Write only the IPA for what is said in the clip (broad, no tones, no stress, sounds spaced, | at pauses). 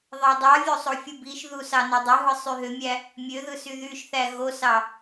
ðˤ æ dˤ ɑ vʲ o sˤ o fʲ u b i ʃ ð u s ɑ n o dˤ ø ɦ ɯ sˤ y ɦ ø mʲ æ | mʲ ø ð ɯ s y ð y ʃ θ æ ɣ o s ɑ